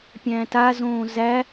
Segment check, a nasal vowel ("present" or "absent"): present